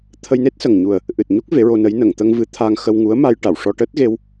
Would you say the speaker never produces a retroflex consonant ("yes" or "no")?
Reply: no